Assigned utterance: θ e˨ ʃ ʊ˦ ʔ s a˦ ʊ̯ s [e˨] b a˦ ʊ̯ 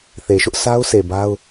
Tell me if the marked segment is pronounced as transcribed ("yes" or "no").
yes